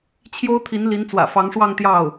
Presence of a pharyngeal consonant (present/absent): absent